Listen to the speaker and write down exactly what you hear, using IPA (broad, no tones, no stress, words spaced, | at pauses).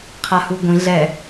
qʰahuɡʷĩ ɮɛ